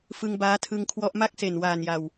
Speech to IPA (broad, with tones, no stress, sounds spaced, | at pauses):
f ɯ˧ ŋ b aː˦˥ tʰ ɯ˧ ŋ kʰ w ɔ˦˥ ʔ m a˥˩ k̚ s e˨˩ n w aː˨˩ n j a˨˩ w